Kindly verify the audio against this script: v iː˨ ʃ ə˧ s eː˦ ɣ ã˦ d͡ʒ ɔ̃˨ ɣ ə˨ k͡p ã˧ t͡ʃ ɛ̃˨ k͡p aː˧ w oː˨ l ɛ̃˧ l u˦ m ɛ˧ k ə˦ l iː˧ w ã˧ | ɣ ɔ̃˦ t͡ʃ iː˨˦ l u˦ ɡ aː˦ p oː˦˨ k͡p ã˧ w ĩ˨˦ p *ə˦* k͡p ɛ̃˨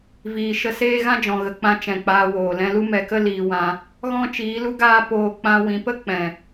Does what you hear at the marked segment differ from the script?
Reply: no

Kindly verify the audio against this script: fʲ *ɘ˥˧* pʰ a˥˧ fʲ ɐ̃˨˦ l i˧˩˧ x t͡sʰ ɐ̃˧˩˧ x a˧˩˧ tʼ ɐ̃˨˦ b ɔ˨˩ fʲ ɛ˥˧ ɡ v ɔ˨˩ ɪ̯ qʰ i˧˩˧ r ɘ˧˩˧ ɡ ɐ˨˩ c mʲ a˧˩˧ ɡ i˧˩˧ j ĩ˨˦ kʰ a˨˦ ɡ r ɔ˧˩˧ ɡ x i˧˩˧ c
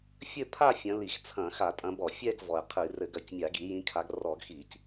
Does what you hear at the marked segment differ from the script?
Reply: no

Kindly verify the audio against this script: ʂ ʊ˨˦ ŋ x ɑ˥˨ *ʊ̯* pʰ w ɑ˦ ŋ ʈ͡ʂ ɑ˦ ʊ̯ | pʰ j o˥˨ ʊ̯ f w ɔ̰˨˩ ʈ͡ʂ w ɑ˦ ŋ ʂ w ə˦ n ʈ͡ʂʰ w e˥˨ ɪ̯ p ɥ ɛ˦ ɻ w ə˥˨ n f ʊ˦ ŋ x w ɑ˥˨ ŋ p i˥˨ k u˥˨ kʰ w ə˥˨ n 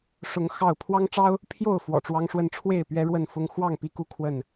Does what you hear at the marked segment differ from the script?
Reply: no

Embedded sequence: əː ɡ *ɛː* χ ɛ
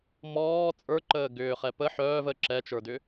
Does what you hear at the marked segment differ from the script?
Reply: yes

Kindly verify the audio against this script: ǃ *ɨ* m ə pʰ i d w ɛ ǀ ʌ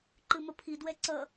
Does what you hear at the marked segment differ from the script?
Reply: no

